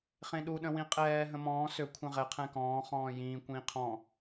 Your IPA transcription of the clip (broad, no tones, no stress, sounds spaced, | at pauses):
χ ẽ ɗ u ɗ ə̃ w ĩ qʼ ɛː ɦ ə̃ m ɔ̃ː s ø kʷʰ ɛ̃ ʁ ɛ qʰ ɛ̃ k ɔ̃ː χ ɔ̃ː j ĩː kʷ ĩː qʰ ɔ̃ː